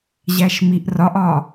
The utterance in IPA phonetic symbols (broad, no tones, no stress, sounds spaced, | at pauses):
ʑ æ ʃ m i ʔ r ɒ ʔ ɒ